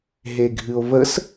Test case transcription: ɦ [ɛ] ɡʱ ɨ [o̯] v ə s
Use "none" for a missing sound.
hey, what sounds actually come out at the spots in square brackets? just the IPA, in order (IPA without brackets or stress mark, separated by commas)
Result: e, o̯